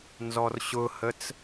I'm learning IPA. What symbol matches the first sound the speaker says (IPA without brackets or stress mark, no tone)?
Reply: n